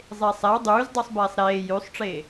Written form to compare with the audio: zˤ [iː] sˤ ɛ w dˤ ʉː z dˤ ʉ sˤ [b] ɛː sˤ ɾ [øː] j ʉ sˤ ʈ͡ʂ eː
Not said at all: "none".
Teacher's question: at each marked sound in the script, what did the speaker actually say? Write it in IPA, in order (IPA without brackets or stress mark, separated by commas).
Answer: eː, b, eː